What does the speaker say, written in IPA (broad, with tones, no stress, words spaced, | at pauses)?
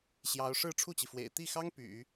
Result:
ɕjɑ˧˥ʊ̯ ʂɻ̩˥˧ʈ͡ʂʰu˥˩t͡ɕi˩fwḛ˨˩ɪ̯ t̪i˥˩xɑ˥ŋ py̰˨˩˦